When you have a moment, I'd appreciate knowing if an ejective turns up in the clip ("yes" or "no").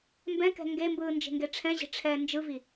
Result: no